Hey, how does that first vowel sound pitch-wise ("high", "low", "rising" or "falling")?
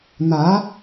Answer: rising